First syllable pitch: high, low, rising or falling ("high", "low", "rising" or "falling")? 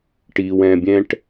low